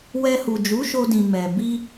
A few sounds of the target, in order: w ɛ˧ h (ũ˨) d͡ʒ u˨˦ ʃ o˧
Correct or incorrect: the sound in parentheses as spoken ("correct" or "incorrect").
incorrect